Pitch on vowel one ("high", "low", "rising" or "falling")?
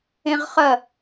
high